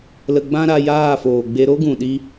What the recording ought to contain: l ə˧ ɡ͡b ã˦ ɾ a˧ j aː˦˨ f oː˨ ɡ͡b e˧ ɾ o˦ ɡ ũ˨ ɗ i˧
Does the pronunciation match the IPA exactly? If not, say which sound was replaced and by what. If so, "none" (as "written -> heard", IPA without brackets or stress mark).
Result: none